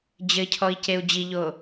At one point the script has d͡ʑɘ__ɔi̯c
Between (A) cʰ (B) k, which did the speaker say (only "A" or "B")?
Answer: A